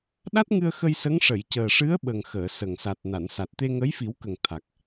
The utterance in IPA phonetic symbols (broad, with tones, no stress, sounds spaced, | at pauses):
ɗ a˦˥ t̚ ŋ ɨ˧ ə̯ x ə˧ j s ə˧˥ ŋ ʂ ə˨˩˨ j c əː˨˩ ʂ ɨ˧˥ ə̯ ɓ ə˨˩ ŋ x əː˨˩˨ s ə˨˩ ŋ s a˨˩ t̚ n a˨˩˨ n s a˨˩ t̚ t̪ e˧ ŋ ə˧˥ j f i˨˩˦ w k ə˨˩ ŋ t̪ʰ a˨˩ k̚